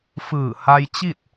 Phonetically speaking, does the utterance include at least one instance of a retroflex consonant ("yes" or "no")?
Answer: no